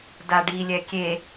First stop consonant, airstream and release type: plain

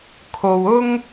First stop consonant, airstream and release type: aspirated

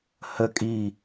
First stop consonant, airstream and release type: ejective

